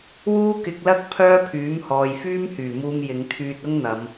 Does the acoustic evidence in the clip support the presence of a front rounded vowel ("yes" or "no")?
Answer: yes